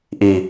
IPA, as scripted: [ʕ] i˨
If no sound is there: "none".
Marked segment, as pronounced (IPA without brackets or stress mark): ʔ